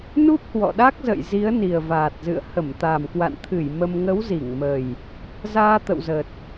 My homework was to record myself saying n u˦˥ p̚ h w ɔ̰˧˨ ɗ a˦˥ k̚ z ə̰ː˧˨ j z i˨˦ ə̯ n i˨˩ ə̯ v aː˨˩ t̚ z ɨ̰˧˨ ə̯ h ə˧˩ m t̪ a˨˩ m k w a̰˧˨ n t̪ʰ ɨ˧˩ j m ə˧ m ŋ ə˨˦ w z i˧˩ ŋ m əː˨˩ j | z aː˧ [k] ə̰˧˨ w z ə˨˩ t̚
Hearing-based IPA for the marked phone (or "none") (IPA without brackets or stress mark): t̪